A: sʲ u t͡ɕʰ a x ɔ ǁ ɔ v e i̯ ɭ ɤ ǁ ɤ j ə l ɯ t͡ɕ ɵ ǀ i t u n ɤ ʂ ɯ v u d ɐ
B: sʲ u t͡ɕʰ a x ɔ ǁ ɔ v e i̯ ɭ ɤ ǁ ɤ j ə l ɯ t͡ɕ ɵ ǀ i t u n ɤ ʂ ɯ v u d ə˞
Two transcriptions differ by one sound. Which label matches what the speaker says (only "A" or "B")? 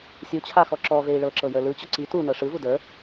B